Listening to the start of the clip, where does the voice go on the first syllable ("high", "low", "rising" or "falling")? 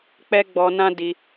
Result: high